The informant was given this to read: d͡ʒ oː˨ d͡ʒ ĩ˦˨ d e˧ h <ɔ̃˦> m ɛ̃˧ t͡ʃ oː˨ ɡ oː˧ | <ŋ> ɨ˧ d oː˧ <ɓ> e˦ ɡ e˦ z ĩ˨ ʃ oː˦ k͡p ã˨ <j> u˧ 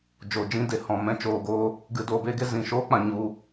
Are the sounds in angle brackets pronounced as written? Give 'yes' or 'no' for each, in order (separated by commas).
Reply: no, no, no, no